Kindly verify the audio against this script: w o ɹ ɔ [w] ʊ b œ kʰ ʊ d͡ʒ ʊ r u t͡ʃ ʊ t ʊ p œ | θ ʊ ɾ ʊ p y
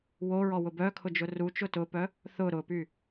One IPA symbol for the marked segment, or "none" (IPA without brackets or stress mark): w